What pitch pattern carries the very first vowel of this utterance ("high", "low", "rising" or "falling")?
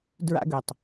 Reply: high